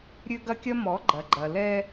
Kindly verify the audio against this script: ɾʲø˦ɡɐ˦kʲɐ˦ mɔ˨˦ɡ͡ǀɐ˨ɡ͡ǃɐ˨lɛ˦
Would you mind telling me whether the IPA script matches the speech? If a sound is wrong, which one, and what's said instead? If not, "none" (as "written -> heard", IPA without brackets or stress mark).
ɡ͡ǀ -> ɡ͡ǃ